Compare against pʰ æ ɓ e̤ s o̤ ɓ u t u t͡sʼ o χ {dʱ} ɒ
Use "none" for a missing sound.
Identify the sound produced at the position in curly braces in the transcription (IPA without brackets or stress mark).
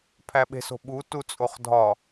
dʱ